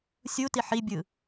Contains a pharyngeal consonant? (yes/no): yes